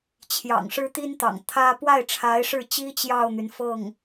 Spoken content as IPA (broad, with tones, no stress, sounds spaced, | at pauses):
t͡ɕʰ j ɑ̰˨˩ ŋ ʂ ɻ̩˥ t̪ i˥ n t̪ ɑ̰˨˩ ŋ t̪ʰ ä˥ p w a˥˩ ɪ̯ ʈ͡ʂʰ a˧˥ ɪ̯ ʂ ɻ̩˥˩ t͡ɕ i˥ t͡ɕ j ɑ˥˩ ʊ̯ n̪ y˩ n f ɤ˥˩ ŋ